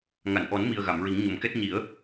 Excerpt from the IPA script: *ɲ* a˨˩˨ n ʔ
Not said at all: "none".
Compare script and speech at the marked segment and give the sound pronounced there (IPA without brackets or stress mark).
ŋ